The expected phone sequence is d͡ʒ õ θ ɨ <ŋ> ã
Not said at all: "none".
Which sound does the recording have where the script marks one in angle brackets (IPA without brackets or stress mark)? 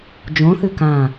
k